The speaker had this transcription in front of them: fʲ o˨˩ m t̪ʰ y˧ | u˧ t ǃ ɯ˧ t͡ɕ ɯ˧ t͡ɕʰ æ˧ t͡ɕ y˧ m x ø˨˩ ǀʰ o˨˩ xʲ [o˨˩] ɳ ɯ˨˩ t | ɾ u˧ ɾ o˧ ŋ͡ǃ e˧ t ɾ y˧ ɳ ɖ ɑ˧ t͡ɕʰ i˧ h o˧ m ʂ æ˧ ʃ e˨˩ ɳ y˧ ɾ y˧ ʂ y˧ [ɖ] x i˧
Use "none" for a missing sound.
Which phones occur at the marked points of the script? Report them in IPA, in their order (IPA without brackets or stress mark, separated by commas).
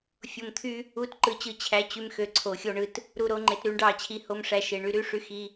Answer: o˧, none